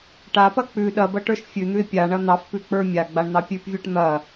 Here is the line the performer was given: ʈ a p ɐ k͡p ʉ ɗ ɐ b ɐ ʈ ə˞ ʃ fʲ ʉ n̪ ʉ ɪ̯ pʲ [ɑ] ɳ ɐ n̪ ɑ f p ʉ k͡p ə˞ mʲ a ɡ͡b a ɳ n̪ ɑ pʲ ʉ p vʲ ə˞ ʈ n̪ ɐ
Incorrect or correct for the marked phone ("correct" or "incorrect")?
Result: incorrect